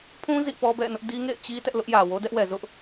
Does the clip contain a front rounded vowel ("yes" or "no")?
no